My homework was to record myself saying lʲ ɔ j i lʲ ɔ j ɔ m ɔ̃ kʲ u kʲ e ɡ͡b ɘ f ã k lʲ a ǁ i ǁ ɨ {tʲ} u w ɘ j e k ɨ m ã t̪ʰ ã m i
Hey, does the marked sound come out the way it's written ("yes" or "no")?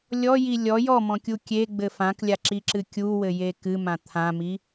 no